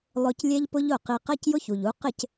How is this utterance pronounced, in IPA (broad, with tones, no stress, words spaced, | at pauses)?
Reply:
lˠʊ˧clʲɛ˦ʎ pʊ˦ʎʊ˦˨ qi˧ qɜ˦cjʊ˦çu˨ʎu˨˦ qɪ˦˨c